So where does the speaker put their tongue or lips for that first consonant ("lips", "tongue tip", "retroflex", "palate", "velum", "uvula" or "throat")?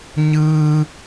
palate